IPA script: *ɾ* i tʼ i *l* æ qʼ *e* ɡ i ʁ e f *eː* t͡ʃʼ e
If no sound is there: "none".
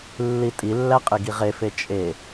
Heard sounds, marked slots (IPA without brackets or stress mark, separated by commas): lː, lː, e, e